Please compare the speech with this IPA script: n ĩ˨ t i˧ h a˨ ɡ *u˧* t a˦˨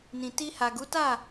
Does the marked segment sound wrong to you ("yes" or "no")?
yes